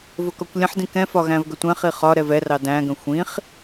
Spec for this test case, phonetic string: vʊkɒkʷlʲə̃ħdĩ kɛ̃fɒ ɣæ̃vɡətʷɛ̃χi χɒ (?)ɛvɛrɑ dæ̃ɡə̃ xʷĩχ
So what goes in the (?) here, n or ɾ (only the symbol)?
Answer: ɾ